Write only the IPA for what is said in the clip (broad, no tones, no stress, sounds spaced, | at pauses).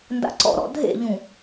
n d a̰ ǀ ɔ̰ ɾ ɔ̰ dʱ ḛ ʎ ũ